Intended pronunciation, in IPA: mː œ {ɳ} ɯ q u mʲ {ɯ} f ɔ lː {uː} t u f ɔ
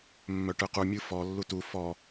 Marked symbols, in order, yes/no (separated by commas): no, yes, no